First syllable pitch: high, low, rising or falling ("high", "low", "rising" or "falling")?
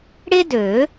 high